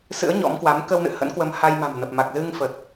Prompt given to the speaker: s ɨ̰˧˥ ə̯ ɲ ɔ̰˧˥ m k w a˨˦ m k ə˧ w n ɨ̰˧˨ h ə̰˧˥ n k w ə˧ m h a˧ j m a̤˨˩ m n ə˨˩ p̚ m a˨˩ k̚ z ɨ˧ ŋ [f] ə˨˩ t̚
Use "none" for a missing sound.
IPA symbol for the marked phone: f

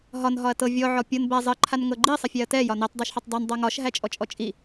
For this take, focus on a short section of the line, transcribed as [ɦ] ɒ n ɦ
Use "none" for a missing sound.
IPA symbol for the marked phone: ɦ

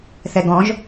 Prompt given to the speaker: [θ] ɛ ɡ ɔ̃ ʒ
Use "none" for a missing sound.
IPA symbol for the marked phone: θ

